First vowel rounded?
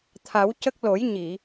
no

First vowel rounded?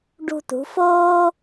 yes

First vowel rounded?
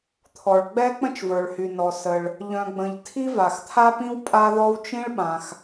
yes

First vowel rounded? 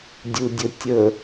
yes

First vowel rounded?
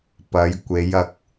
no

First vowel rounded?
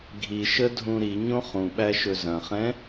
no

